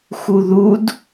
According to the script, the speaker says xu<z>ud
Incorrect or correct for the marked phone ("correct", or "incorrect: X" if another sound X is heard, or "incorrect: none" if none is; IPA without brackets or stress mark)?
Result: incorrect: ð